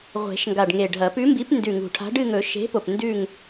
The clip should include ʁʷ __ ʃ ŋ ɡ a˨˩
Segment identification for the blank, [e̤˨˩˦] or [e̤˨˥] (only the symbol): e̤˨˩˦